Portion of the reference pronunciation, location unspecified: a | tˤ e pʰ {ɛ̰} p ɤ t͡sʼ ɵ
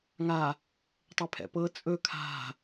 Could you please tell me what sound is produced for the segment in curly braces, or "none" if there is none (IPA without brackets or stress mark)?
ɛ̰